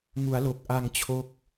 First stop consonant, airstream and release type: plain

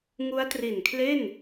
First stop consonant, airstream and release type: plain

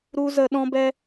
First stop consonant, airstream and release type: implosive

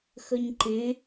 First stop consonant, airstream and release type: click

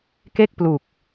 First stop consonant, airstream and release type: plain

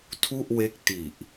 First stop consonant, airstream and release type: aspirated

